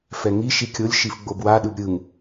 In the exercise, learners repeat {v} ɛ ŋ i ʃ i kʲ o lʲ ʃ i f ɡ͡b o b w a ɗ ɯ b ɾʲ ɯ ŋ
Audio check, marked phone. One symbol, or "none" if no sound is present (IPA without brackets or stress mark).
f